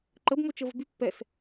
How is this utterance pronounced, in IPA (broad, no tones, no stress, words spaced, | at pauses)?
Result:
ǃəbmot͡ʃəvə̤ by pːɛs